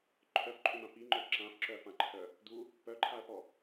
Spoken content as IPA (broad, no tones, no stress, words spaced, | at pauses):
ǃʰœfǃʼʏmã piŋ͡ǃœ ǁãfǁœɐ̯fãǃʰœ | d̪u | pœǃʰaɐ̯pɔ